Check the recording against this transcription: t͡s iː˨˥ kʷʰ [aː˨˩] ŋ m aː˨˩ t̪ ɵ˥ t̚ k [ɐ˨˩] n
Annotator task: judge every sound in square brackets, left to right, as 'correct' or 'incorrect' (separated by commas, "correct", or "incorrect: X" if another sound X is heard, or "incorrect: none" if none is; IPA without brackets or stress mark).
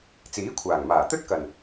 correct, correct